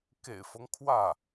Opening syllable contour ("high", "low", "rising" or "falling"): low